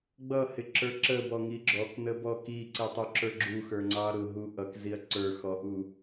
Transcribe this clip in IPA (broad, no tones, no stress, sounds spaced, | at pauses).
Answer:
ɡ͡b ʌ h ɪ ǁ ə˞ ǁ ə b ɔ ŋ i ɡ͡ǁ ɔ k n ə b ɔ k i ǀ i tˤ u ǁ ə˞ ɡ͡ǁ u x ə˞ ŋ͡ǀ ɑ ɾ ʊ ɦ u ʔ ʌ k z i ɐ̯ ǀ ə˞ x ɔ ʔ u